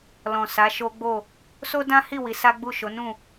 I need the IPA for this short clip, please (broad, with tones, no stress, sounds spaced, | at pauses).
l ɔ̃˨ s a˨˦ ʃ o˦ ɡ͡b o˦˨ | s o˦ d ã˦ h i˦˨ w i˨˦ s a˦ ɡ͡b u˦˨ ʃ o˨˦ n ũ˦˨